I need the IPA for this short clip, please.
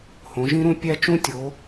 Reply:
h õ˩˧ ʒ ĩ˦˥ ɾ ũ˦˥ pʲ æ˦˥ t͡ʃ ũ˦˥ tʲ o˩˧

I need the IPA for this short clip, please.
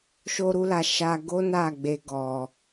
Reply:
ʃ o˧ ɾ u˧ l a˨ ʃ a˧ ɡ o˦ n a˦˨ ɡ͡b e˧ ɡ ɔ˨

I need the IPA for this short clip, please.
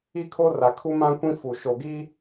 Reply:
i˦ kʰ o˦ r a˨ kʰ u˦ m ã˦ kʷ ĩ˦ f u˨ ʃ o˨ ɡ i˦

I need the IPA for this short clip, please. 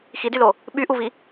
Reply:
x i d y l o | ɓ y ʔ u v i

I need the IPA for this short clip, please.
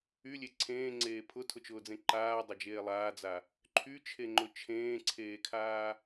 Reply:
y lʲ e ǀʰ ẽː ŋ͡ǀ eː pʰ ʊ tʰ ʊ t͡ʃ ʊː d͡z ẽ ǃ aː dˤ a d͡ʒ eː lˠ aː d͡z a | ǃʰ y t͡ʃʰ e ŋ͡ǃ ʊ t͡ʃʰ ẽː ǀʰ eː kʰ aː

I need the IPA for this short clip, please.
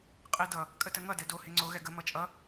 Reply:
qʼ e d ʌ | kʼ ə t ə ŋ ʌ d ɛ d o h e ŋ͡ǀ o ɣ ɛ ɡ ə m ʌ t͡ʃʼ ʌ

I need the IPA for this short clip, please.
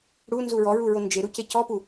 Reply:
ɽ u n z u ɹ ɔ ɹ u ɹ o n d͡ʒ e ɾ u c e c ɔ p u

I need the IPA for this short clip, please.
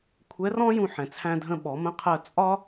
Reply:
kʷʰ ɛ˧˥ r ɔ̃˥ j ũ˧ ħ ɛ̃˩ t͡sʰ æ̃˧ dʱ ə̃˧ ɓ ɔ˩˧ m ə̃˧˥ qʰ əː˧ t͡sʼ ɒ˥

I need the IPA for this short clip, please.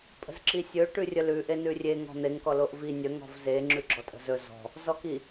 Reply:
pʼ ə̤ z ǁ i sʲ ɵ ʈ ʉ rʲ ə l ʉ ʔ e n ʉ rʲ e ŋ ɔ̤ n̪ e ŋ k ɔ l o ʔ v i nʲ ə ŋ ɔ̤ v z e ŋ͡ǁ ʉ ɡ͡ǁ ɔ tʼ ə̤ z ɵ z ɔ̤ | z ɔ k i

